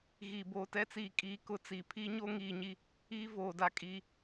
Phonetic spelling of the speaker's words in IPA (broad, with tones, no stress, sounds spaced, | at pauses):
ɣ i˨ b oː˨ t ɛ˦ t͡s iː˨ kʼ iː˨ k ʊ˦ t͡s i˨ pʰ i˦ ɲ o˦ ŋ iː˨ ɲ i˦ | iː˦ v oː˨ d a˦˨ kʼ i˦